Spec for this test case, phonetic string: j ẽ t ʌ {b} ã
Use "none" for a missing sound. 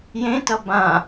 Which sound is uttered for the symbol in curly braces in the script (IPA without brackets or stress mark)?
b